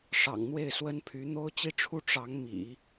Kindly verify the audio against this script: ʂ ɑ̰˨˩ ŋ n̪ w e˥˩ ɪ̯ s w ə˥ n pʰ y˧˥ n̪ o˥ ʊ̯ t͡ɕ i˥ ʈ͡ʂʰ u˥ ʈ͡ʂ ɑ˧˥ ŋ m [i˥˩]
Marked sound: incorrect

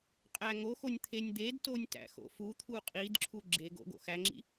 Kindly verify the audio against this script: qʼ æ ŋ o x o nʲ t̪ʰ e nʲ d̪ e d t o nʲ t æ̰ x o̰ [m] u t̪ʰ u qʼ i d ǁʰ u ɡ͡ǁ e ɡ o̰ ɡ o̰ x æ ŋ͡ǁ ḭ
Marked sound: incorrect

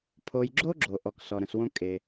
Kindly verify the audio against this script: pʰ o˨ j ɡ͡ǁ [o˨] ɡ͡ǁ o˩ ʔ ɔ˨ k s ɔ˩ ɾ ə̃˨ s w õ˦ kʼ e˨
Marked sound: incorrect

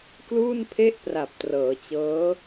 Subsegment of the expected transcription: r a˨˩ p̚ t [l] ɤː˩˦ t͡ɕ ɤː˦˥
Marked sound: incorrect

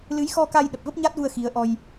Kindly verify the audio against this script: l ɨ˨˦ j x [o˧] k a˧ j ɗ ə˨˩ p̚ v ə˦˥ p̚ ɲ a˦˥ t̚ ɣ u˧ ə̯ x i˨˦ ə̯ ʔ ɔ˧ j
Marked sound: incorrect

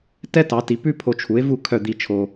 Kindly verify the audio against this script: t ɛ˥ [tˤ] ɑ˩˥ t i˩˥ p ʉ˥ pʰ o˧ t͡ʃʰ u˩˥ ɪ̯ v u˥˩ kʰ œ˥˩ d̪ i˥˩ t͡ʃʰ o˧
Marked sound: incorrect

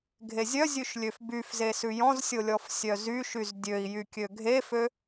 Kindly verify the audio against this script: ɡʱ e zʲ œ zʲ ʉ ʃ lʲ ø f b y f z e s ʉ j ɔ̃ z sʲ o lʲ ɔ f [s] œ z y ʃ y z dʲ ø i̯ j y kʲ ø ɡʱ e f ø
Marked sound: incorrect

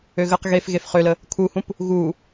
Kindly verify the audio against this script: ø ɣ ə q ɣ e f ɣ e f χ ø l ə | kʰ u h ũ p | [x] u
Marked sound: incorrect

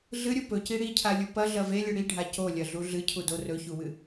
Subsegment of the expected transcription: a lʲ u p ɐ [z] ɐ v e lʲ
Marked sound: incorrect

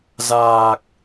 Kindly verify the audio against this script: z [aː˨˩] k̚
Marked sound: correct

